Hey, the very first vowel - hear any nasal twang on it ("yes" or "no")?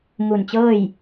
no